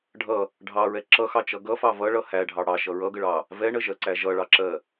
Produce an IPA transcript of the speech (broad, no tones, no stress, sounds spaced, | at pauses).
ɖʱ ʌ | ɖʱ ɑ ɹ ɛ ǁ ʌ x ɑ t͡ʃ ʌ ɡ ʌ f ɑ v ʌ ɭ ʌ h æ ɖʱ ɑ ɽ ɑ ʃ ʌ ɹ ʌ ɡ ə ɭ ɑ | v ɛ ɳ ə ʒ ɜ ǀ æ ʒ ʌ ɭ ɑ ǁ ɜ